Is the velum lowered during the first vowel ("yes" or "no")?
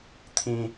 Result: yes